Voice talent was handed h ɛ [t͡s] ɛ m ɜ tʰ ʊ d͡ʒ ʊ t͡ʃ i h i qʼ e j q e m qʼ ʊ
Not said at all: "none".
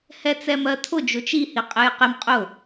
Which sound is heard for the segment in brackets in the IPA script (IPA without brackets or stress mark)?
t͡s